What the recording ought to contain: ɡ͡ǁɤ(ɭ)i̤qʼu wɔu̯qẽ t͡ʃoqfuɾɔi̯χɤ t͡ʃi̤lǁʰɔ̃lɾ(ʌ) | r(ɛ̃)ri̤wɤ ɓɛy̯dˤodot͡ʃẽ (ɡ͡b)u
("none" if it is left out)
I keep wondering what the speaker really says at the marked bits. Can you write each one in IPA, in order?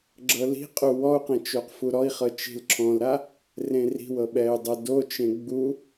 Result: l, a, ẽ, ɡ͡b

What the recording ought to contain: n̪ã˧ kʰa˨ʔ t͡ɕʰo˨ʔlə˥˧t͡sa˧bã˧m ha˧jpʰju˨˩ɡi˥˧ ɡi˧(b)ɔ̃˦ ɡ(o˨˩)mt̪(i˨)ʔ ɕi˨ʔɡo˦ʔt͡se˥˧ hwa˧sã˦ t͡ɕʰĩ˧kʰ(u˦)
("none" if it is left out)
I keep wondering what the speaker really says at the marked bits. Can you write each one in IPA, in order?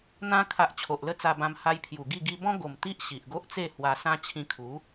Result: b, o˨˩, i˦, u˨˦

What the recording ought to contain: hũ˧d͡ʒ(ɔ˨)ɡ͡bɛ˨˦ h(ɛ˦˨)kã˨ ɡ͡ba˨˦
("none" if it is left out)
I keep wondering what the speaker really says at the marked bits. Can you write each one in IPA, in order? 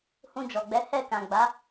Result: ɔ˨, ɛ˦˨

